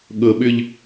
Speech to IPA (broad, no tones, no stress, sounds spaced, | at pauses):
ɠ ɤ ɓ ʏ ʎ